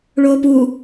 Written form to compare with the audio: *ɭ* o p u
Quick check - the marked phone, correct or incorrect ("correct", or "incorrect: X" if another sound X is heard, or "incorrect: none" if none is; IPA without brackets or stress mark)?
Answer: correct